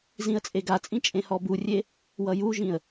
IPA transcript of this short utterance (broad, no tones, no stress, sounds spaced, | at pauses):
z ĩ ə̯ t͡sʼ e ɡ a t͡sʼ ĩ t͡ʃʼ ẽ h ɔ b u rʲ e | w ʌ j u ʒ ĩ ə̯